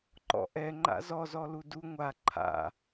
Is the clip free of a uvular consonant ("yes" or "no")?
yes